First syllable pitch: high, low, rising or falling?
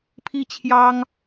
falling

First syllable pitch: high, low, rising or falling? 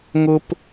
high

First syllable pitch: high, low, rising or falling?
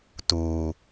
low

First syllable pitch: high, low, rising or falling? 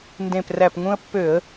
low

